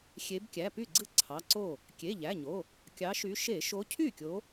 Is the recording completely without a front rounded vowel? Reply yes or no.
no